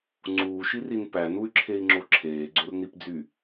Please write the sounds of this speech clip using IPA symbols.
ŋ͡ǀ uː ʃ i r i n p æ n u y̯ ǁʰ e i̯ ŋ͡ǁ o ǁʰ eː ɡ͡ǀ o r n i p d͡z y

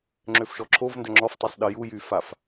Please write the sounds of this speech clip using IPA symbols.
ŋ͡ǁ ø f ʃ ɔ ǁʰ o v n d œ ŋ͡ǁ ɔ f tˤ i sˤ ɗ ə j u j y f a f

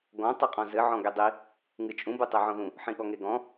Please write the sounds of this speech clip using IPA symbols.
ɡ ɔ̃ tˤ ɨ qʼ ɔ̃ z ɘ ʕ ɔ̃ ɡ e dˤ i | ŋ ɨ t͡ʃʼ ũ b u tˤ e ʕ ɔ̃ ð ũ | ħ ĩ ɠ ɔ ŋ e ɡ ɔ̃

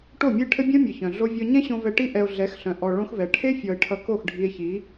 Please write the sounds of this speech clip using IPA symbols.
ʈ o˦˨ mʲ e˦ ʈʰ ɘ˦ bʲ ɔ̃˦ mʲ ʌ˨ ç œ̃˨ ɮ o˦ vʲ ɔ˧ ɲ ɛ̃˦ ɕ õ˧ v ɛ˧ ʈ i˦ ʔ ɛ˧ o̯ ɮ ɛ˨˦ x ɬ œ̃˨˦ ʔ ɔ˧ ɭ õ˦ x v ɛ˨ ʈʰ e˦ fʲ ɔ˨ e̯ ʈʰ ʌ˧ k o˦˨ x ɖʱ i˧ e̯ ç i˨˦

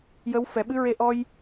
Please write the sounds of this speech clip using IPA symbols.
j ə˧˥ w f ɛ˨˩˦ ɓ ɨ˧˥ ɹ e˧ ʔ ɔ˧ j

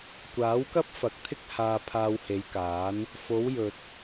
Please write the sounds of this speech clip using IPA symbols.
kʷ aː˨˥ w k ɐ˥ p̚ f ɐ˨˥ k̚ t̪ʰ ɪ˥ k̚ h aː˧ pʰ aː˧ w h e˨˧ j k aː˨˥ n | f o˨˧ w j ɵ˨ t̚

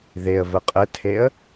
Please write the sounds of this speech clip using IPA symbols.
ð e ə̯ v ə qʼ ə tʰ e ə̯

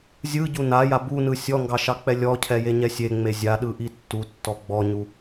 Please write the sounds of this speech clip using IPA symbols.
zʲ ɯ ɟ u n a j a b u n ɯ sʲ ɔ ŋ ɡ ɑ ʃ ɑ k͡p ɛ lʲ ɔ cʰ ɛ j e ɲ ɛ sʲ e ŋ͡m e zʲ a ɗ ɯ ʔ i tː u tː ɔ ɡ͡b ɔ ɲ u

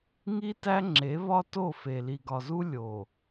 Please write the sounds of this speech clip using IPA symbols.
ŋ i˦ t æ˦ ŋ͡ǁ e˨˦ β ɒ˦ t o˦˨ f e˨ l i˨ ɡ ɒ˨ z u˦ lʲ o˨

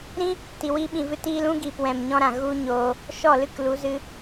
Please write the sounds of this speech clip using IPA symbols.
ɾ ĩ˦ | t i˨ w i˧ ɓ ĩ˨ v ɨ˧ t iː˧ l ũ˦ ɡ iː˨ p w ɛ̃˨ m ɲ ɔ̃˧ ɾ ã˨ ɣ u˦ ɲ oː˧ | ʃ ɔ˦˨ l ɨ˦ k l u˨˦ z ɨ˧

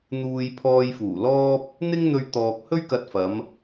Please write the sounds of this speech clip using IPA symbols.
n̪ uː˨ j pʰ ɔː˧ j f uː˨˩ l ɔː˥ p̚ | n̪ ɪ˥ ŋ n̪ ɵ˧ ɥ t̪ ɔː˨ k̚ h ɵ˥ ɥ k ɐ˧ t̚ f ɐ˨˧ m

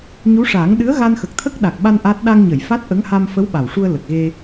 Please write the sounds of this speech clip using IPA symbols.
ɲ u˧˥ ʂ aː˨˩˦ ŋ ɗ ɨ˧˥ ə̯ ɣ a˧ n x ə˨˩ k̚ t̪ʰ ə˦˥ k̚ ɗ a˨˩ k̚ ɓ a˧ n ʔ a˦˥ t̚ ɗ a˧ ŋ ɲ ə˨˩˨ j f a˦˥ t̚ ʔ ə˧˥ ŋ h a˧ m f ə˧˥ w ɓ a˨˩ w ʂ u˧ ə̯ l ə˨˩ k̚ ɣ e˧

